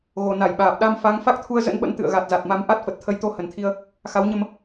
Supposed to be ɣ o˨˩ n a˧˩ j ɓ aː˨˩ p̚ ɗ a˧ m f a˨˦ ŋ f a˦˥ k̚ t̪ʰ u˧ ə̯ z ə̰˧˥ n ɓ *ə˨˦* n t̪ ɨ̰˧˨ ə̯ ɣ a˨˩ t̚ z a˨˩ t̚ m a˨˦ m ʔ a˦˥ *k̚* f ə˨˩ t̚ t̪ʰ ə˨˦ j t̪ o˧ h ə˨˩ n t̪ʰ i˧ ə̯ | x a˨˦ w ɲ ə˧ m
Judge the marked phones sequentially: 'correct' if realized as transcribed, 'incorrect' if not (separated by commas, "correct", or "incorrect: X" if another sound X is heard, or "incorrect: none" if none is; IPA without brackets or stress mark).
incorrect: ə̰˧˥, incorrect: t̚